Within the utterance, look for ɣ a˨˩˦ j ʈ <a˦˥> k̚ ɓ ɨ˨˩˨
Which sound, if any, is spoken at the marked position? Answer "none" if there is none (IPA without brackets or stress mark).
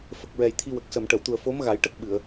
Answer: ə˦˥